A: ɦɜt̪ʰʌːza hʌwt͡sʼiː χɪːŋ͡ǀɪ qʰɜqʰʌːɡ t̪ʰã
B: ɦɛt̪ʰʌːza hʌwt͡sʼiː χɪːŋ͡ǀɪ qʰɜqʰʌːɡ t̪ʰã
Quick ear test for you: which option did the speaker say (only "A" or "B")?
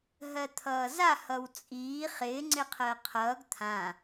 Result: A